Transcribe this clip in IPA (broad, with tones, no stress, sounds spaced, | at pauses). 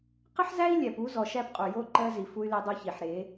q ə˦ ħ z æ˦ i̯ lʲ æ˨ p u˦ z ɔ˨ ʃ æ˦ p qʼ u˨ j o˦ ǃ ɜ˦ z i˨ f u˦ y̯ l i˦ dˤ o˦ ç i˨ ħ ɾ e˨˦